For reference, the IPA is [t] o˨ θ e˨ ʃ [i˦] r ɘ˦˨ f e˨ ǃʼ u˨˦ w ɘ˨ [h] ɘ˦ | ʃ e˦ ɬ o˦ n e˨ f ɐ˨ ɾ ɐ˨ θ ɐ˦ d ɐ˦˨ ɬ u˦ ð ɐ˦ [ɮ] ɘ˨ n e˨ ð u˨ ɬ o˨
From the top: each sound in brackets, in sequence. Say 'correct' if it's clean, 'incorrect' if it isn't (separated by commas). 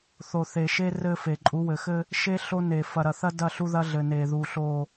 incorrect, incorrect, incorrect, correct